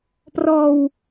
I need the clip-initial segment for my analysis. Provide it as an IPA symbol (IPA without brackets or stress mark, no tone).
p